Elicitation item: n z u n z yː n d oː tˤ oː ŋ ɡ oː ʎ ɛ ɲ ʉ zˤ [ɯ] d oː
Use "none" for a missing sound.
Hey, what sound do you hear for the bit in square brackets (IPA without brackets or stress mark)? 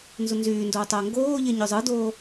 ɯ